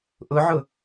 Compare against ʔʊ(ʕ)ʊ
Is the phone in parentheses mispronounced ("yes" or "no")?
no